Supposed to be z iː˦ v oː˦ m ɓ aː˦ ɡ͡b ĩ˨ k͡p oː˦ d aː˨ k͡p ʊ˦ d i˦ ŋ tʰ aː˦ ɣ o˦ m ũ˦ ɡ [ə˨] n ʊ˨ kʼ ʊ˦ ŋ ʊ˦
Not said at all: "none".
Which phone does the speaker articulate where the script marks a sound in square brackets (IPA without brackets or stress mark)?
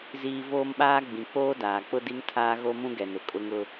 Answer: ɛ˨